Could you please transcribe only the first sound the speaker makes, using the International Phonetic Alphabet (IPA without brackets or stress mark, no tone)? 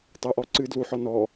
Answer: tˤ